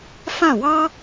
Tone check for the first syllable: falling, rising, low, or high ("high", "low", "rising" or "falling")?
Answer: falling